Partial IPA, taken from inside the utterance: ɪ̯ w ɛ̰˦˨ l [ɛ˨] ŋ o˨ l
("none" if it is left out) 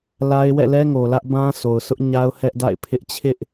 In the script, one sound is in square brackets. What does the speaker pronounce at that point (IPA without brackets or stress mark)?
ɛ˦